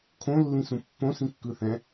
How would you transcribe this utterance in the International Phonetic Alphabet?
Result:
kʰ õ lː ĩ s ũ pː õ s ĩ kː ɯ θ ɛ̃

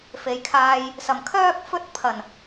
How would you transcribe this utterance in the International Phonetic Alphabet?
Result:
f e˨˧ j kʰ aː˧ j | s ɐ˨˩ m kʰ œː˥ k̚ f ɵ˥ t̚ pʰ ɐ˨˩ n

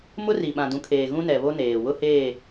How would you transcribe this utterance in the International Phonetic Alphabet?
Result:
m ʊ˦ r i˨ ɓ ã˨ d ũ˨˦ kʰ eː˨ ɣ ũ˦ n ɛ˨ β o˦ n eː˨ w ʊ˦ h eː˦˨

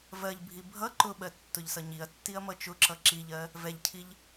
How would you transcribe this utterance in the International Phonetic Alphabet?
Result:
v ɜ ʎ bʱ i bʱ ʌ ǃ ʊ ɓ ɜ tː ʊ ʎ s ʌ ɲ i ɐ̯ tː i ɐ̯ m ʌ t͡ʃ ʊ ǁ ʌ ǁ i ʎ ɜ | v ɛ ʎ cʰ i ʎ

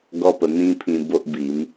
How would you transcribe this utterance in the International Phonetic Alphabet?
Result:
ɡ ɔ˦ p ə˧ n̪ ĩ˦ pʰ ĩ˧ b o˦ ʔ b i˨˦ m

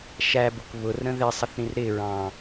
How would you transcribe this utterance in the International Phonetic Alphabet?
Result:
ʃ æ b ʊ k β ʊ r ɾ ə̃ ð ɪ sˤ ʌ θ ɾ ĩ r ɾ ɪ ɹ ɑ̃

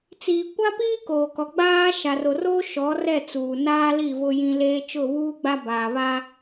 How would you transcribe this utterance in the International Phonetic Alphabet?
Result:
t͡s iː˨ kʷ a˦ p iː˦ k oː˨ k ɔ˨ ɡ͡b aː˦ ʃ a˨ r o˨ r oː˦ ʃ ɔ˨˦ r ɛ˦˨ t͡s uː˨ n aː˦ l i˦˨ v ʊ˦ j ĩ˦ l eː˦ t͡ʃ ʊ˦˨ β uː˦ ɡ͡b a˦ b aː˨ β a˦

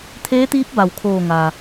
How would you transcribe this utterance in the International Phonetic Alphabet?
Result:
t̪ʰ eː˧˥ t̪ iː˧˥ p̚ b a˩ w kʰ oː˧˩ ŋ aː˩

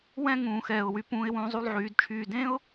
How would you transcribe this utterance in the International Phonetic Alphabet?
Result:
w ɛ̃˥˧ ŋ ũː˧ x ɛː˧˩ ʊ̯ w y˧ p ũː˧ ɪ̯ w ũː˧ zˤ u˥˧ lˠ ʕ yː˩˧ d t͡ʃʰ yː˧˩ d ẽ˥ ʊ̯

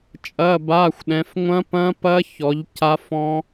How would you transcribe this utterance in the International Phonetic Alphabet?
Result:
t͡ʃʼ ɐː˧˥˧ b aː˧˥˧ xʷ ɗ ɛ̃˨˦ f ŋʷ ɐ̃˦˥ p ɐ̃˦˥ p ɐ˦˥ ç ɔ˨˦ ʎ c a˦˥ f ɔ̃˦˥

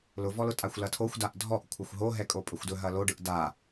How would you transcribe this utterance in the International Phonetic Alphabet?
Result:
l ʊ v ɔ l ʊ tʼ a xʷ l ɐ tʰ o xʷ d a ʔ dʱ ɔ ʔ kʷʰ ɐ xʷ ɦ o ɦ ɛ kʼ o pʼ ɵ xʷ d ɵ ɦ ɐ l o ɖ ɯ ʔ d a

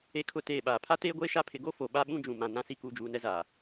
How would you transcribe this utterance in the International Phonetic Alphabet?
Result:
e˦ kʰ ʊ˦˨ t eː˦˨ ɓ aː˨ pʰ a˦ t eː˦ ɡʷ eː˦ ʃ a˦ pʰ ɪ˨ ɡ o˦ f o˨ ɓ a˦ ɓ ũ˦ d͡ʒ ũ˨ m ã˨ n ã˦ s i˦ k uː˨ d͡ʒ uː˨ n ɛ˦ z aː˨

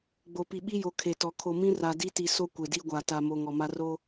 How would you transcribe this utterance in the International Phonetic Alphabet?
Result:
ɡ͡b o˨ p i˨ ɓ i˦ j o˨ kʰ e˨ t ɔ˨ kʰ o˨ m ĩ˦ r a˨ d i˦ t i˨ s o˦ kʷ e˨ d i˦ ɡʷ a˨ t a˨ m o˨ ŋ ɔ˨ m a˦ r o˦

